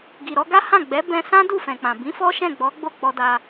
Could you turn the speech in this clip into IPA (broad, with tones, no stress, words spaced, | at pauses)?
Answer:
ɡi˨ ɾɔ˧ɡa˦hã˦˨ ɡ͡bɛ˨˦bɛ̃˧sã˦ du˦˨fɛ̃˨k͡pã˨ bĩ˨˦fɔ˦ ʃɛ̃˦˨ɡ͡bɔ˨˦ ɡ͡bo˦˨k͡pɔ˧da˧